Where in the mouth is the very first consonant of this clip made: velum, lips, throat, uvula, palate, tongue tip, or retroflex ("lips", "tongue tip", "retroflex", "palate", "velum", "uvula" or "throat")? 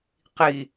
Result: uvula